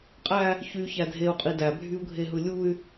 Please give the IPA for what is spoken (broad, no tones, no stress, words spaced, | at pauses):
qʼæ | çyçæ dʱeu̯qʼi dæbʱyu̯ɡʱeɦɯ lʲuy̯